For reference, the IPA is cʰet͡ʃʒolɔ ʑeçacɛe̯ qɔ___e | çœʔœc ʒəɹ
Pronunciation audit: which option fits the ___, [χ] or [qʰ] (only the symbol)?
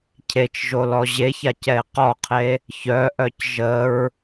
qʰ